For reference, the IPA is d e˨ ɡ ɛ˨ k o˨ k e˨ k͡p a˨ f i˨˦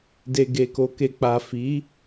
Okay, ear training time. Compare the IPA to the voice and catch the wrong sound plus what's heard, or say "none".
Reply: ɛ˨ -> e˨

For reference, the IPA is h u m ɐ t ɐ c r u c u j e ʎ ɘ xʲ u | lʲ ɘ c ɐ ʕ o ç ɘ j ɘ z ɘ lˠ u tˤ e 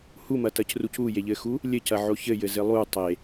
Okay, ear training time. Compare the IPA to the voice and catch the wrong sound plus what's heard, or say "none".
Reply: xʲ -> x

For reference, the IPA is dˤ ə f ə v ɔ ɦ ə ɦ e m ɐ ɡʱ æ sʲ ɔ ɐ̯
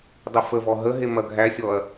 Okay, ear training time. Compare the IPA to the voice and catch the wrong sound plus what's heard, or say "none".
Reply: none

